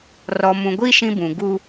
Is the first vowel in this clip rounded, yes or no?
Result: yes